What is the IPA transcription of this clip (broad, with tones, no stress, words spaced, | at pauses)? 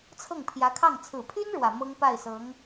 t͡sʰɤ˥˩ŋpʰjä˧˥kʰɑ˥˩ŋ t͡sʰɹ̩˨˩pʰy˥n ɻwä˨˩mɤ˥ŋ pa˥˩ɪ̯sɤ˧˥ŋ